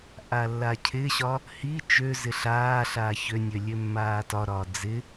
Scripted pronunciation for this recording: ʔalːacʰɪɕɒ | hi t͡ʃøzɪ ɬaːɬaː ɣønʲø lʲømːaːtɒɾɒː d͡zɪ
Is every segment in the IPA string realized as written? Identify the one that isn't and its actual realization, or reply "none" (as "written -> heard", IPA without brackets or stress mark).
ɣ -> ç